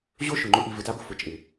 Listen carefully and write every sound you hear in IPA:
ʑo˦ ʃʊ˨ŋ͡ǃʊ˦ʔi˧ vɪ˧ta˦bʊ˧ fʊ˨t͡ʃʼɪ˨

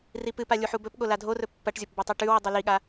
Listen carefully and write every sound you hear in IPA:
ripɨpa lʲuħubɵpɠo ladʱorɵ pːɐʈzʲop bɵtˤoʈʉwi dˤuliɠa

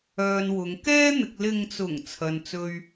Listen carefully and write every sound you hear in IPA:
œː˧nwʊ˨˧ŋ kɛː˥ n̪ɪ˧k̚ lɪ˨ŋt͡sʊ˨˩ŋ t͡sʰɐ˧nt͡sɵ˥ɥ

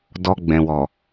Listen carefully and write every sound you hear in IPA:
dɔ˧ɡ͡bɛ̃˨wɔ˨

